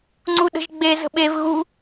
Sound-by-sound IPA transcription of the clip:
ŋ͡ǀuɗə̤ʒɡ͡be zə̤ɓev ɣu

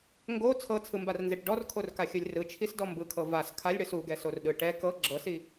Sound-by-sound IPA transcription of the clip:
ŋɡo t͡sʰɤt͡sʰɯmbarnzeʈ ɖɔrkʰorkaxʲɯlʲ rɯt͡ʃʰisdɔ mbɯkʰɤ vas kʰalʲɽɯs uɡɛsorɗɯ ʈɛ kɤ ɡ͡ǁɤsi

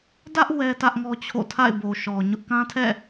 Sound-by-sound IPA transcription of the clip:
dä˦ʔ wɛ˦tä˦ʔŋɔ˦t͡ɕʰo̰˦˨ tʰa̰˦˨ɪ̯bo˨ʃɔ˨ɲʊ˦ʔ kã˦tʰɛ̰˦˨

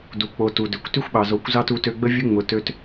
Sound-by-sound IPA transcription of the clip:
du˨k͡po˨ tu˨dø˨kʷ ty˦xʷɓɑ˨zo˨˦kʷzɑ˦ tu˧tø˧ɡ͡bə˦vʲʊ˦ ŋ͡mʊ˧ tø˧t

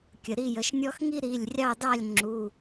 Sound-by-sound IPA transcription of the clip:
kʲə˩ ɾi˥˨jə˩˧˩ʃnʲɔ˥x ŋi˥ɾi˩˧˩lʲrʲɑ˥˨dɑ˥˨lʲ ŋ͡ǁu˩˧˩

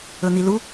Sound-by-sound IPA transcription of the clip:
ɵn̪ilu

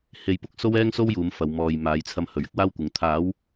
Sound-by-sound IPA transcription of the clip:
he˧jpʊ˥k̚ so˥wɛː˥ŋso˥w juː˨˧mfɐ˨w mɔː˨j maː˨˧jt͡sʰɐ˧m hɵ˨ɥɪ˥k̚waː˥wkʷɪ˨˧ŋ t̪ʰaː˨˧w

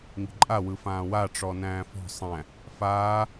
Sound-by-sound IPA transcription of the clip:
ŋi̤ǃʼa wɯfãːwa ʈ͡ʂɔnæ̃ːfɔ̤ sˤæ̃ | faː

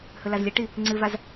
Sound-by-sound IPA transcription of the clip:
hɵlazlʲəʈi | ŋ͡ǀɨvaz

